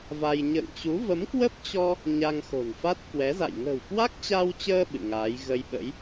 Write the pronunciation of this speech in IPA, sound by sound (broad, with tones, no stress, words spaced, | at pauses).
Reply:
va˧j ɲə̰ː˧˨ŋt͡ɕu˨˦ və˨˦mkwə˦˥p̚t͡ɕɔ˧ | ɲa˧ŋxo̤˨˩nfa˦˥t̚ kwɛ˨˦za̰˧˨j ŋə̤˨˩wkwa˦˥k̚t͡ɕa˧wt͡ɕəː˧ ɓɨ̰˧˨ŋaː˨˦j ɣə˧j ɓə̰˧˥j